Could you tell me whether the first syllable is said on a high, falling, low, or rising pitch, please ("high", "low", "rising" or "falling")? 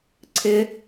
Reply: low